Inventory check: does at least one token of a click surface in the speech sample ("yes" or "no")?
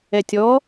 no